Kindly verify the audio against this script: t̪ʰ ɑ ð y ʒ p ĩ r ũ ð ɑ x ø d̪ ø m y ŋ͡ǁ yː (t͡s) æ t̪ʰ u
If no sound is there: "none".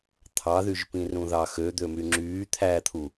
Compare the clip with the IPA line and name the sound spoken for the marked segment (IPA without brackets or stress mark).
t̪ʰ